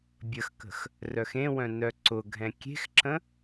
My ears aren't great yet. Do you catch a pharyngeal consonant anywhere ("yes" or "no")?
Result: no